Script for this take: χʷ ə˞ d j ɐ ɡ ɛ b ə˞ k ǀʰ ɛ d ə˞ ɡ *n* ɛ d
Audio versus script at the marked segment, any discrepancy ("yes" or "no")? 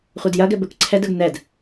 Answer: no